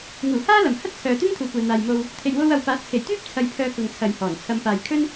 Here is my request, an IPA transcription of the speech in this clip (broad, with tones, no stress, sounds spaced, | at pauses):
ŋ uː˨˩ h aː˥ l ɐ˨˩ m h ɐ˥ t̚ t͡sʰ œː˨ t̪ ɪ˥ ŋ t̪ʰ uː˨ kʷ ɛː˨ n̪ aː˨ j m o˧ w | t̪ʰ e˨ j w o˧ w ɐ˨ w p aː˨˥ t̚ t͡sʰ e˨˩ j t̪ yː˥ p̚ t͡sʰ ɐ˧ j pʰ œː˧ k ʊ˨ ŋ t͡sʰ ɐ˨ j h ɔː˨˩ n t͡sʰ ɐ˧ m p aː˨ j kʰ ɵ˥ n